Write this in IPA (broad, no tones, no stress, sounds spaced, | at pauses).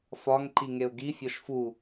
f ɒ ŋ ǃ i ŋ e ʊ̯ ɡ i fʲ ɒ ʃ f u